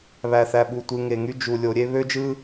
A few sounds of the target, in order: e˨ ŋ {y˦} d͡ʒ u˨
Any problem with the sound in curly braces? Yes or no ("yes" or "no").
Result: no